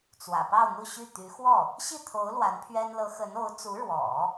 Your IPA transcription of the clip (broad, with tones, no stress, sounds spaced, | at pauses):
t͡s w ä̰˨˩ p ɑ˥˧ ʊ̯ n̪ u˥˧ ɕ y˥˩ t̪ y˧˥ x w ɔ˥˩ | ɕ i˥˩ t̪ʰ o˧˥ ʊ̯ l w a˧˥ n pʰ ɥ ɛ˥ n l ɤ˧˥ x ə˧˥ n o˧˥ ʊ̯ t͡s u˧˥ ɻ w ɔ̰˨˩˦